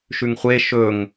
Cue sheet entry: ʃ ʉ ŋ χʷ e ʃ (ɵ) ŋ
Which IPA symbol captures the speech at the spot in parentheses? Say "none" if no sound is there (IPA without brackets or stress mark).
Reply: ɵ